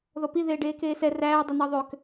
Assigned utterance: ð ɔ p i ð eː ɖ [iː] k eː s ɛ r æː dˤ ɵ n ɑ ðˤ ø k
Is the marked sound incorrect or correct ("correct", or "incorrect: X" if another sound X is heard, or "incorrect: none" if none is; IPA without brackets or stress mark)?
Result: incorrect: eː